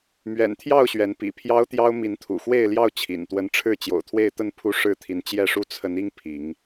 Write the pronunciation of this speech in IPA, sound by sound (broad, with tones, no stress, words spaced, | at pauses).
mɥɛ̰˨˩nt̪ʰjɑ˥˨ʊ̯ ɕɥɛ˨˦npḭ˨˩pʰjɑ˦ʊ̯t̪jɑ˦ʊ̯ mi˨˦nt̪ʰṵ˨˩xwe˥˨ɪ̯ljɑ˥˨ʊ̯ t͡ɕʰḭ˨˩nt̪wə˦n ʈ͡ʂʰɻ̩˥˨t͡ɕjo̰˨˩ʊ̯t̪ʰwe˥˨ɪ̯t̪ə˥˨n pʰu˦ʂɻ̩˥˨t̪ʰi˨˦n t͡ɕjɛ˥˨ʂu˥˨ t͡sʰə˨˦ni˦ŋ pʰi˨˦ŋ